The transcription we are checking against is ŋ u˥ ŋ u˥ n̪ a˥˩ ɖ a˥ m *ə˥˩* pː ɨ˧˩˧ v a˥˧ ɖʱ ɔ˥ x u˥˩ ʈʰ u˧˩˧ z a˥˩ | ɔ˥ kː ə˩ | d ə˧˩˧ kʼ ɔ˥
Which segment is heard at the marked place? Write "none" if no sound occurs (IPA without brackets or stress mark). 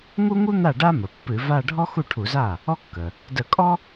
ə˩